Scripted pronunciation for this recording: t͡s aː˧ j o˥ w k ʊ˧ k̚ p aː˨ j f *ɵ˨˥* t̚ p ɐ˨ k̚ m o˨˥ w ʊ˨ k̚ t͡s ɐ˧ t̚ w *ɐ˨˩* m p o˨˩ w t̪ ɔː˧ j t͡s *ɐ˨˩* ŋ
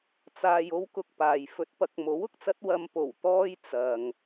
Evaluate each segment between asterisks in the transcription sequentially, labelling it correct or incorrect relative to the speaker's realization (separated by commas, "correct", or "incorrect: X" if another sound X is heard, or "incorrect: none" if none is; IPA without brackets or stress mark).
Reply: correct, incorrect: ɐ˧, incorrect: ɐ˧